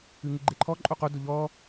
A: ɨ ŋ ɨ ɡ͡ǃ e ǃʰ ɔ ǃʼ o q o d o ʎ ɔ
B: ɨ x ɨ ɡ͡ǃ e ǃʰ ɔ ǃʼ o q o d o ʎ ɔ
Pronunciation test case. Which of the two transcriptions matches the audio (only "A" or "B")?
A